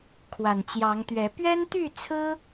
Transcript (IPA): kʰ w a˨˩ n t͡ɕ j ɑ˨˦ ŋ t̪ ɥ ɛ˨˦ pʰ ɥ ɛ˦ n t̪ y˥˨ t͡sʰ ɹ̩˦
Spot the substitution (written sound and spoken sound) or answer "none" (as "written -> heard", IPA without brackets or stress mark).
pʰ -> p